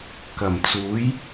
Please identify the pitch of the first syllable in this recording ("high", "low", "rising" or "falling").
low